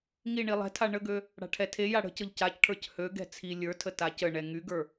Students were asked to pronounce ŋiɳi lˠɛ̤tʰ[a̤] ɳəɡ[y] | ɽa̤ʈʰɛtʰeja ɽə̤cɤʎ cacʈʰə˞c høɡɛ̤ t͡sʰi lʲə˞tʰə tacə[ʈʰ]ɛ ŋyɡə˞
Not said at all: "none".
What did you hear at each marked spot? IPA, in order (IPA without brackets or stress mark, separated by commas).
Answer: a, ø, ɳ